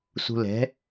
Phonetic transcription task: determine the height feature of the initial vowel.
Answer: high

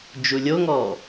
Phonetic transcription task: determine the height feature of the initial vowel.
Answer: high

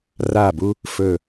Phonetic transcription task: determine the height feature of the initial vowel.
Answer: low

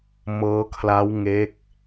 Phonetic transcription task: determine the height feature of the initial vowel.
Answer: mid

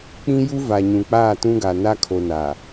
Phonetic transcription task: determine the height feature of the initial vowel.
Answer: high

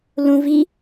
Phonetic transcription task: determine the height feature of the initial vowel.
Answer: high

